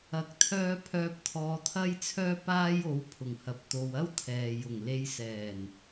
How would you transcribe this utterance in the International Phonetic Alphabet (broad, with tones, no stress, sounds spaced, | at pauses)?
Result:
ɐ˨ k̚ t̪ʰ œː˥ pʰ œː˧ p̚ t̪ʰ ɔː˨˧ t̪ʰ ɐ˥ j t͡sʰ œː˥ p aː˥ j o˨˥ w pʰ ʊ˨˩ ŋ h ɐ˨˥ p̚ t̪ o˧ w ɐ˥ w t̪ʰ ɛː˨ j ʊ˨˩ ŋ l e˧ j s ɛː˨˩ n